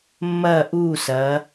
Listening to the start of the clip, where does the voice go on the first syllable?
falling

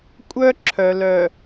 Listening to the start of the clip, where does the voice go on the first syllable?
high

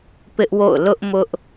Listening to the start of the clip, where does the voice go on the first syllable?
high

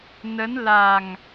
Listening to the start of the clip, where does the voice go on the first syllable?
rising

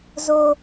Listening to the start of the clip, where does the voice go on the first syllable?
high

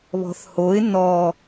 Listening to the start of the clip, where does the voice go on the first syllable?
low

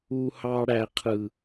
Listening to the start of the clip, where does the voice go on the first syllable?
high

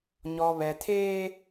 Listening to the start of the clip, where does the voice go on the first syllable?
low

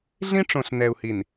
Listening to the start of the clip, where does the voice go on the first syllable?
high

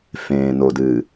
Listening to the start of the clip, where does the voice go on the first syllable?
low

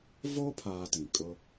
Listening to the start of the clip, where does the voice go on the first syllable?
high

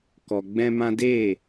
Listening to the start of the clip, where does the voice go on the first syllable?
low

